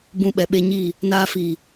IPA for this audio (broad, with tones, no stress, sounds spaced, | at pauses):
b ũ˧ ɓ ɛ˨ ɓ e˧ ɲ i˦˨ | n aː˧ f i˨